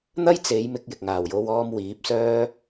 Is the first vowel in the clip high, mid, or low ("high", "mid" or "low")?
low